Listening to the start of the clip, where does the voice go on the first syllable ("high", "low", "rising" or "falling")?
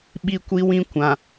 high